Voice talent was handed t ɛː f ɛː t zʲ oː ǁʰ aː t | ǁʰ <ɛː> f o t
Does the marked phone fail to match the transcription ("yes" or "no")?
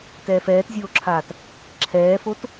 no